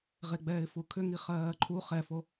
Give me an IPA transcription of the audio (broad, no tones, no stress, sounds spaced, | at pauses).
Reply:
ʁ e ɡ͡b ɛː ɪ̯ f u kʰ ʏ ŋ i χ ɜː ǃʰ u χ ɛ f o